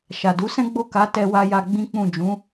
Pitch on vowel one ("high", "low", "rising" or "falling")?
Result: low